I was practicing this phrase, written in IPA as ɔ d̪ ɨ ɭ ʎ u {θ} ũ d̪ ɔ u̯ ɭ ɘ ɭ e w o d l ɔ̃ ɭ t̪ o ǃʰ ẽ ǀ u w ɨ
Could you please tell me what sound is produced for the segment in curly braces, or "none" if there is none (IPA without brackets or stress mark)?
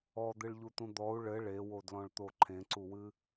t̪